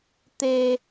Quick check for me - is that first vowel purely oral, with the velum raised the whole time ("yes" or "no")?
yes